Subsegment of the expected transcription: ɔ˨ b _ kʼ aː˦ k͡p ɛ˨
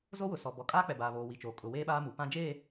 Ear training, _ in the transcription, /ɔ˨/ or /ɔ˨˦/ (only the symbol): ɔ˨